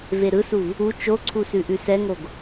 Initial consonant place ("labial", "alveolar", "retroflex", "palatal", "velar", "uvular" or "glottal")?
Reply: labial